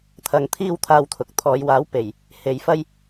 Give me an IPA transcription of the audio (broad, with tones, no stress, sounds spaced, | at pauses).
t̪ʰ ɐ˨ ŋ t̪ʰ iː˧ w t̪ʰ aː˧ w t̪ʰ ʊ˨ k̚ t̪ʰ ɔː˨˧ j w aː˨˥ w p e˨˩ j | h e˨˧ j f ɐ˧ j